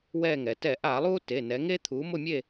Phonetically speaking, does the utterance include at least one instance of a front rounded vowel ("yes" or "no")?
no